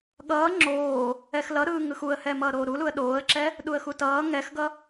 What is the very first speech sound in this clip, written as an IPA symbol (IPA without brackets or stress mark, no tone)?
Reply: ɠ